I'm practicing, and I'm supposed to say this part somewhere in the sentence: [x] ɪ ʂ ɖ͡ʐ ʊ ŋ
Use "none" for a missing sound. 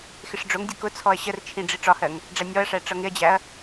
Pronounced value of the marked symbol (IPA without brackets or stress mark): x